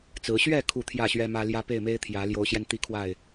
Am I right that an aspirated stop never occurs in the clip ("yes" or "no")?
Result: no